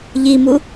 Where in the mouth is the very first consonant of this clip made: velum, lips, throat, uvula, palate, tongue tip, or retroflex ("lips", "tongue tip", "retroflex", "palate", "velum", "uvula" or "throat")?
palate